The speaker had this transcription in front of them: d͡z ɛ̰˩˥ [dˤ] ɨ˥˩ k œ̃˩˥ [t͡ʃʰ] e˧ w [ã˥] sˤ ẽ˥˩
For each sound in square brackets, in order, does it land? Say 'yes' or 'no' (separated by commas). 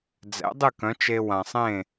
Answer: yes, no, no